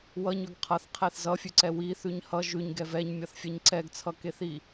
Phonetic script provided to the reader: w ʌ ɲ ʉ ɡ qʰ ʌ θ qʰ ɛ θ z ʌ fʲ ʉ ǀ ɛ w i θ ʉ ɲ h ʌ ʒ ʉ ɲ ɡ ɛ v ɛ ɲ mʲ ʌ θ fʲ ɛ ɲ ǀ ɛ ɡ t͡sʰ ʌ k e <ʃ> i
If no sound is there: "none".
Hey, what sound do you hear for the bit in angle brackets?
θ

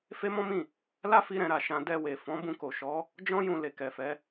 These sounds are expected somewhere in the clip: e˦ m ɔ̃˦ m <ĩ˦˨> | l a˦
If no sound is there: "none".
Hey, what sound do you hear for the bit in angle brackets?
ĩ˦˨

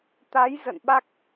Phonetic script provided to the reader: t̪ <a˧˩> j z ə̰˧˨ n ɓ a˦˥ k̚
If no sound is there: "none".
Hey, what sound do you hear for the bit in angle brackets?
a˨˦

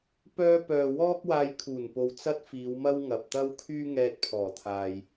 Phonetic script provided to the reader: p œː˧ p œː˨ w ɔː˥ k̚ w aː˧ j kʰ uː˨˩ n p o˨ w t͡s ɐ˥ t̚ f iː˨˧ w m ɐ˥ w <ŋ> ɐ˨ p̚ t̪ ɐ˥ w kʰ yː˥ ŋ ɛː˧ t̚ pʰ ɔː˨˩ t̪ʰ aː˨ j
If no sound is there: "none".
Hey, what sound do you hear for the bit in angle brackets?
ŋ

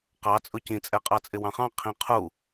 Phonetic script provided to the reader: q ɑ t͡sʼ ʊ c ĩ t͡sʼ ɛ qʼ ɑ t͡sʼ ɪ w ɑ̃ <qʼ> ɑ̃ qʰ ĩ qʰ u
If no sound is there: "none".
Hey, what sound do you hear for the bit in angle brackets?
χ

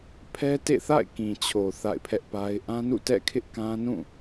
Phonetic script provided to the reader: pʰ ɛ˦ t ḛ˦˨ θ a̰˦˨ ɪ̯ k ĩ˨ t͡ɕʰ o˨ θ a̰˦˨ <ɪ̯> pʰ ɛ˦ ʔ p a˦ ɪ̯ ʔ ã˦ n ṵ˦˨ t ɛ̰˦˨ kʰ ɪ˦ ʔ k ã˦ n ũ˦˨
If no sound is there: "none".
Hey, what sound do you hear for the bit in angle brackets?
ɪ̯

